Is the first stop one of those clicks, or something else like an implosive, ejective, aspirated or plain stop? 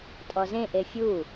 ejective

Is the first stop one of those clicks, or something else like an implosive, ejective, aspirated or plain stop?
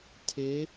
aspirated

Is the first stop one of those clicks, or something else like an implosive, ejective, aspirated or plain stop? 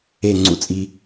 click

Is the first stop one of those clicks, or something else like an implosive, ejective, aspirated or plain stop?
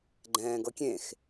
click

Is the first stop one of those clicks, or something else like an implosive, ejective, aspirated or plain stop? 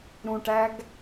plain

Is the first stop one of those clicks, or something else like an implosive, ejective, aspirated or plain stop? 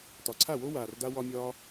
plain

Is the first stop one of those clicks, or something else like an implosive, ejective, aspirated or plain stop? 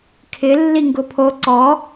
aspirated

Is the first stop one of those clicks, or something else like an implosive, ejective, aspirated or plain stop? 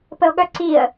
plain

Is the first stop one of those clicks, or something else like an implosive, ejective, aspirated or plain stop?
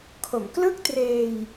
aspirated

